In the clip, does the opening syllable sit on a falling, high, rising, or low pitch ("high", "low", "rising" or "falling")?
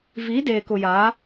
rising